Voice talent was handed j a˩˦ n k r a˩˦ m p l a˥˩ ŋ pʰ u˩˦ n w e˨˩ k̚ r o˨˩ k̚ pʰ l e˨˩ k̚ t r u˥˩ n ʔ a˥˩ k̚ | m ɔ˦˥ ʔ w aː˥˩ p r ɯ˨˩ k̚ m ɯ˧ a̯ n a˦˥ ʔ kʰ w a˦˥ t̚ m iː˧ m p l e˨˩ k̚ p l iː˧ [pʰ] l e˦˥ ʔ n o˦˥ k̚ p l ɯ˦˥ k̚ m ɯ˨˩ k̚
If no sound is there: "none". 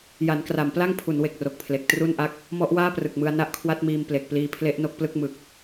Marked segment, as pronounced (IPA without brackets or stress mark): pʰ